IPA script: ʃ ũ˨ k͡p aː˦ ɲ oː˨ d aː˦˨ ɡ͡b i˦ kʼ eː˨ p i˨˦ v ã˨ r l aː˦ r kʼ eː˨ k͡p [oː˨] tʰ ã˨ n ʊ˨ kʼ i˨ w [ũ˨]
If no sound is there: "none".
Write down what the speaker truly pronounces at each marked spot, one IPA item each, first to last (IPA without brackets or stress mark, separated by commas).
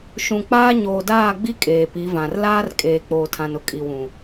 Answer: oː˨, ũ˨